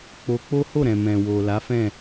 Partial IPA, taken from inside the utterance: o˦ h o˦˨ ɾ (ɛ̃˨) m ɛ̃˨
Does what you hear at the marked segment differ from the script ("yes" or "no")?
no